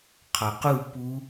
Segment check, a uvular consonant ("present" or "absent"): present